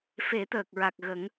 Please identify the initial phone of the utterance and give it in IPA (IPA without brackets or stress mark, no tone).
f